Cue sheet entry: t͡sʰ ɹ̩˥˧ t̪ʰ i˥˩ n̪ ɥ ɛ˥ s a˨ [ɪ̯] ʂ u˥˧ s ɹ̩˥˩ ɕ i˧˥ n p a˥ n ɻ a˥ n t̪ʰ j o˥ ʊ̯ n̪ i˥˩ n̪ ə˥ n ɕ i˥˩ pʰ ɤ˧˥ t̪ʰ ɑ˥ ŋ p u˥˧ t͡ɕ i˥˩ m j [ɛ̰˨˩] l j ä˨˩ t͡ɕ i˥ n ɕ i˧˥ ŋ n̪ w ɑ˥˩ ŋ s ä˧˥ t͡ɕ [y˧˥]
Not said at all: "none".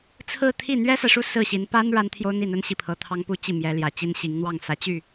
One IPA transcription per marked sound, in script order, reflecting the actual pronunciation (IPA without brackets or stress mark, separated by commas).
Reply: ɪ̯, ɛ˧˥, y˥˩